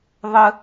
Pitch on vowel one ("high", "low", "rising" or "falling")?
high